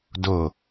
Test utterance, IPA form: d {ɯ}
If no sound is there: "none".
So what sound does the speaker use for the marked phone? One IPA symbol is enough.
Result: ʊ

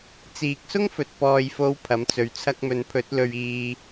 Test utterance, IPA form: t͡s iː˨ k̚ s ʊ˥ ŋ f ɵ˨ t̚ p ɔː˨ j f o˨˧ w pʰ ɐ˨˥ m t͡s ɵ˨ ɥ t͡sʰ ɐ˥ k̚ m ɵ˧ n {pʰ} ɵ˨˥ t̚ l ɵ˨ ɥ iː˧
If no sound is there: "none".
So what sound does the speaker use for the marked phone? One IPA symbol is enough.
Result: pʰ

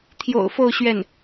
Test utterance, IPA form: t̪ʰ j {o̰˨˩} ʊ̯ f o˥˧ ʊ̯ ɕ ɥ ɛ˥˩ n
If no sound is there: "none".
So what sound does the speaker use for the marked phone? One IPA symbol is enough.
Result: o̰˨˩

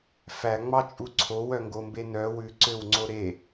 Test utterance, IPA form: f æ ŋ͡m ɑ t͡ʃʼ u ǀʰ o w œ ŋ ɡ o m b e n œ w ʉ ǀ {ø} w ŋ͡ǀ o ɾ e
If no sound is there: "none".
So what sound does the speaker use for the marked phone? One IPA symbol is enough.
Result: ø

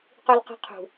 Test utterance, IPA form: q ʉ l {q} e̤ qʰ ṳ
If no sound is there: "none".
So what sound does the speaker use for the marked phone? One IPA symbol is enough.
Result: q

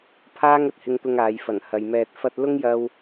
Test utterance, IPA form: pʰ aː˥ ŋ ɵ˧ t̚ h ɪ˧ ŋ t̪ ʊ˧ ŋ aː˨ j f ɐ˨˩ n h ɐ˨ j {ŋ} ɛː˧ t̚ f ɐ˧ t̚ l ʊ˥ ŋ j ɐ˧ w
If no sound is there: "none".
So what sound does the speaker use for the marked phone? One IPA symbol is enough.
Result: m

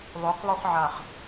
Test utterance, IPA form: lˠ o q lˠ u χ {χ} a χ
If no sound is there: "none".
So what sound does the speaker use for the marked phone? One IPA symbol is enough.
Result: ʕ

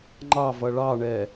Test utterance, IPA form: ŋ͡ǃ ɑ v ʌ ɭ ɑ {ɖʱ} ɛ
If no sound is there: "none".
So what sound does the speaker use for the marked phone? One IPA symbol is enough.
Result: ɳ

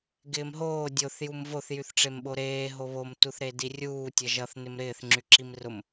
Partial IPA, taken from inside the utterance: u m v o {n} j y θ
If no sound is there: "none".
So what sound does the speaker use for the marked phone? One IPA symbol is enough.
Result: θ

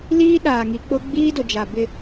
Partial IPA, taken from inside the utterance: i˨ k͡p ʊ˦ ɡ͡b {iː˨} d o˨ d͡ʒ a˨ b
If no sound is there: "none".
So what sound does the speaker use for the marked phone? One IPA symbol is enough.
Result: iː˦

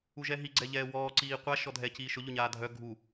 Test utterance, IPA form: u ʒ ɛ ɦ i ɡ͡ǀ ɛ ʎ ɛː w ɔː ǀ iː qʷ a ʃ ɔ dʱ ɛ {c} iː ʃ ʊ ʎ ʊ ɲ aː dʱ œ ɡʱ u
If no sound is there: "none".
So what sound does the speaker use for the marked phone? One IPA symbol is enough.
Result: c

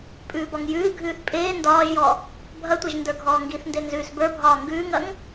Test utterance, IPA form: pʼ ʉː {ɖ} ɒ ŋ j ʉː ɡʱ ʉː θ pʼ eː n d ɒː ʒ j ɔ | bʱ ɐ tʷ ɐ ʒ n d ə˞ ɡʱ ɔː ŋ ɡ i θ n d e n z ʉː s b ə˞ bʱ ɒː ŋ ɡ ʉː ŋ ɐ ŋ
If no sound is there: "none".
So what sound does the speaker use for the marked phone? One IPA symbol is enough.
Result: b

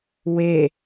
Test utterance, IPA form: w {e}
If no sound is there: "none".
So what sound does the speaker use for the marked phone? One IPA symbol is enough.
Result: e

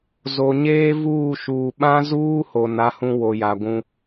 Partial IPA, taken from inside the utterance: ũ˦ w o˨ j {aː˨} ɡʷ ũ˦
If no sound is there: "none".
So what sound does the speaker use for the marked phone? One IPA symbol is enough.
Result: a˨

